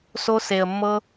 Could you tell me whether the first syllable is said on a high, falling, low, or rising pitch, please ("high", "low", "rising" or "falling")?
high